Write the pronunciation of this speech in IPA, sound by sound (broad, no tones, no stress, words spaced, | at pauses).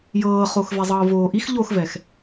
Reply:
jɤːχox vɛzˤɤːvoːʔix ʎoxvɛx